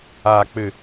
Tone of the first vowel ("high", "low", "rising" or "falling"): low